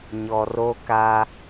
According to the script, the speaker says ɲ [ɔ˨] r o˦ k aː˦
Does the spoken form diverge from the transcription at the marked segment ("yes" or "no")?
no